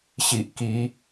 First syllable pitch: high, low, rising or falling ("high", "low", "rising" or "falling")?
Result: low